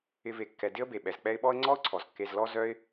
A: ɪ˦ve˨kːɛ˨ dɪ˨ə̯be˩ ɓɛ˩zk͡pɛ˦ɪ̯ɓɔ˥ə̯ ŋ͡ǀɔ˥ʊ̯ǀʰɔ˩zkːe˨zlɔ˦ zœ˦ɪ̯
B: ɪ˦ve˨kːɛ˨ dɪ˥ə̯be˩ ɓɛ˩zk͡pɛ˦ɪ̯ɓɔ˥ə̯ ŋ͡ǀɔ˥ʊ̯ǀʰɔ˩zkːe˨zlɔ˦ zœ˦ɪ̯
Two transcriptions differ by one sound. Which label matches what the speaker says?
B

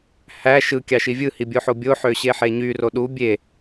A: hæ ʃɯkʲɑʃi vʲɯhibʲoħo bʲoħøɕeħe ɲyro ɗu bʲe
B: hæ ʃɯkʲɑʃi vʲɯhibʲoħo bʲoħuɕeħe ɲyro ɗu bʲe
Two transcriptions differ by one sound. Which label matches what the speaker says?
A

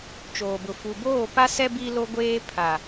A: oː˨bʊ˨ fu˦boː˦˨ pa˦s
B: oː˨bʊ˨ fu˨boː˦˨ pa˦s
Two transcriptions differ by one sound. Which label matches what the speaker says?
B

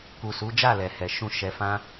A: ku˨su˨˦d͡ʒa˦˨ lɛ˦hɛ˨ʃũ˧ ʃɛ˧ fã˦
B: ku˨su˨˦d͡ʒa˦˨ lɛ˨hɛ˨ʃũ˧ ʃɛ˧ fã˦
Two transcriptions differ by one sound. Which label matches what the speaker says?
B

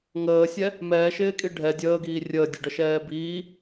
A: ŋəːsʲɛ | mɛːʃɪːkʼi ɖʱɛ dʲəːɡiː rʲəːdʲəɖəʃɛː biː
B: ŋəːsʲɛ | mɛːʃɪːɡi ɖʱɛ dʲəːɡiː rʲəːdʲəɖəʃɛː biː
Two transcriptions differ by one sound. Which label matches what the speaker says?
A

